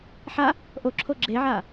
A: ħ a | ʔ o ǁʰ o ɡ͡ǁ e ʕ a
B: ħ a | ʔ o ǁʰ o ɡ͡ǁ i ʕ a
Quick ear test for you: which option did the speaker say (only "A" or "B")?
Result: A